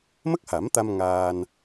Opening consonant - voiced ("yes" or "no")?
yes